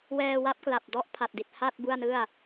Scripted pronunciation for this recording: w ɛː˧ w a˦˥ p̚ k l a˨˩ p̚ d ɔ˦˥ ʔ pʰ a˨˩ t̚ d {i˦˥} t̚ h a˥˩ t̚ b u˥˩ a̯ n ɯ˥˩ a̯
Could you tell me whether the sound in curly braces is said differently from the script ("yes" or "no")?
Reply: yes